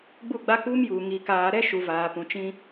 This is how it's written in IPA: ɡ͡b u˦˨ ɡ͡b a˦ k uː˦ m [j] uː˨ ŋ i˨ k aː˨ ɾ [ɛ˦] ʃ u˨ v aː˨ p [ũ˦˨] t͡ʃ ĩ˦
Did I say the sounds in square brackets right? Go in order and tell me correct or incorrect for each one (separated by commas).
correct, correct, incorrect